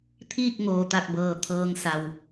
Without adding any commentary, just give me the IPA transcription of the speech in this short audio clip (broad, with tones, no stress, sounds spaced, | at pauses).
t̪ʰ iː˥˨ k̚ ŋ oː˩ t̪ a˧˩ k̚ b ɤː˩ t̪ʰ ɤː˧ ŋ s a˩ w